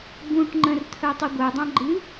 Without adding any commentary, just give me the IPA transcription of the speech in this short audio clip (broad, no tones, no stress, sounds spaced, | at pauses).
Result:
b ũ ʈ ŋ͡ǃ ə̃ r t̪ʰ œ tˤ u ɡʷ œ dˤ ã ɡ͡ǃ ɨ